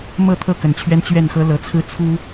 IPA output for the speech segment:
m ɤ˥˨ t̪ʰ ɤ˥˨ k ə˨˩ n t͡ɕʰ ɥ ɛ˦ n t͡ɕ ɥ ɛ˥˨ n x ɤ˦ l ɤ˨˦ t͡sʰ ɹ̩˦ t͡sʰ u˦

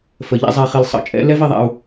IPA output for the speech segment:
f ə˨ ʎ ɛ̰˦ zˤ ɛ˨ χ i˨ l sˤ ə̰˨˦ t͡ʃʼ ɛ̰˦ l ɛ˦ v i˨ ðˤ a̰˨ u̯

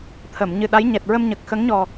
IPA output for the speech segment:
t̪ʰ ə˨˩˨ m ɲ ɨ˨˩ ɗ a˧˥ j ɲ ɛ˨˩ t̚ ɹ ə˧ m ɲ ə˨˩ k̚ x ə˧˥ ŋ ɲ ɔ˨˩

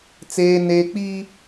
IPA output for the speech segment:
t͡s eː˦ n eː˦ k͡p iː˦

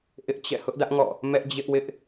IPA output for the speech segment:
ʔ ɪ˦ ʔ t͡ɕ ɛ̰˦˨ h ʊ˦ ʔ d ä˦ ʔ ŋ ɔ̰˦˨ | m ɛ˦ ʔ d͡ʑ ɪ˦ ʔ w ɪ˦ ʔ

